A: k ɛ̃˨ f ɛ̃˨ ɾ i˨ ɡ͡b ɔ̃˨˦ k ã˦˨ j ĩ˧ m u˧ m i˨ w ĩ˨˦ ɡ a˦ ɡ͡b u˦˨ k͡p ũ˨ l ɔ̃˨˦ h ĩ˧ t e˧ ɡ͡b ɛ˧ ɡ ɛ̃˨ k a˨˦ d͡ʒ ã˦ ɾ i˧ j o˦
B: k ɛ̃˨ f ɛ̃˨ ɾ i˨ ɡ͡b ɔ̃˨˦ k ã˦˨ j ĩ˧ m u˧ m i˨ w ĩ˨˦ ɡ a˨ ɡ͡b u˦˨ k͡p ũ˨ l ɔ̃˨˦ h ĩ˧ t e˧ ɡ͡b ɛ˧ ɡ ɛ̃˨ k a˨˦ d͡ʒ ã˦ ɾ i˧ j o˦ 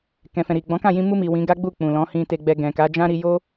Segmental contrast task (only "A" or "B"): A